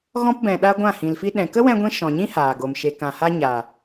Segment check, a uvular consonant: absent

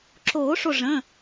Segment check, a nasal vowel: present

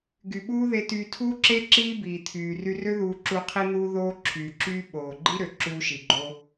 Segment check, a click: present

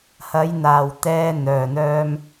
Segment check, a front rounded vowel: present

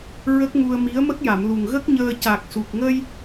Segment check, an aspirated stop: absent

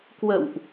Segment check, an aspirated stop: absent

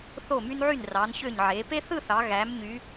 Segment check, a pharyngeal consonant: present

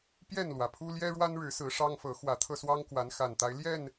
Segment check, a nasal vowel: absent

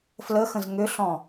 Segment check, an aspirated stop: absent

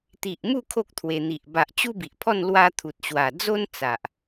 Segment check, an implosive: absent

